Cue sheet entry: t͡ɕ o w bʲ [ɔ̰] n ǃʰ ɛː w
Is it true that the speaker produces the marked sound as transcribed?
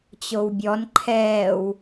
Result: no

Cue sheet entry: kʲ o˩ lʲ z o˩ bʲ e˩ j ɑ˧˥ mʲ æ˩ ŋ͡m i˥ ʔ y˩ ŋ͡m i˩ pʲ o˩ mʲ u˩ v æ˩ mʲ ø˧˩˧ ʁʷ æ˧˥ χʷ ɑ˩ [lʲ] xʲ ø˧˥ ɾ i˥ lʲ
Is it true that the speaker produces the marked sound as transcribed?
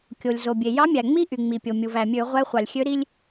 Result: yes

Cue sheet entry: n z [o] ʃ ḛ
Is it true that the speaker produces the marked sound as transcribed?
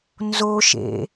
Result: yes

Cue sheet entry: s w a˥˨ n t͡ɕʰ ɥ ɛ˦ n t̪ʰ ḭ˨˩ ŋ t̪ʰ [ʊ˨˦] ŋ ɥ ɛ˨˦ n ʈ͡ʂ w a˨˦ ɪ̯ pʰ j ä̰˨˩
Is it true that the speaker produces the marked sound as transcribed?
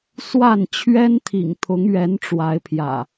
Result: yes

